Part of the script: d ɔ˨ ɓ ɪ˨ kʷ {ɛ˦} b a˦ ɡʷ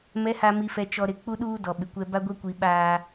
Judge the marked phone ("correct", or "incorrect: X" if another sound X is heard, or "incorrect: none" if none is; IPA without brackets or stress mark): correct